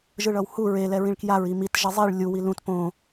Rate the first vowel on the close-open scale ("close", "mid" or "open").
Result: close